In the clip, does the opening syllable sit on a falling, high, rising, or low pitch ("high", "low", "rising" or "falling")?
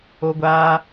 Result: high